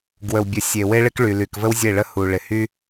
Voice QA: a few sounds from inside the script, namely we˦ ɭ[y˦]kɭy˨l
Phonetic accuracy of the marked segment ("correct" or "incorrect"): incorrect